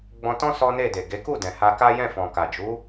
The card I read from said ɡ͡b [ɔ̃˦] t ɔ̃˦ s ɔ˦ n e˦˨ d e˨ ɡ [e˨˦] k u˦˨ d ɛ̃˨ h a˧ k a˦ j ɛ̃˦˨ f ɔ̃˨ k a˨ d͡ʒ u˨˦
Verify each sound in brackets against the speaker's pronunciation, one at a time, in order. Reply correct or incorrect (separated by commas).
incorrect, correct